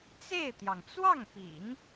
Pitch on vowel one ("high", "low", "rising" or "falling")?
falling